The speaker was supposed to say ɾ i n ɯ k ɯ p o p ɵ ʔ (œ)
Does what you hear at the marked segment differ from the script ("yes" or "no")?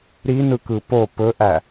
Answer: yes